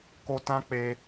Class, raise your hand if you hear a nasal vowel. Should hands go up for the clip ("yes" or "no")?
yes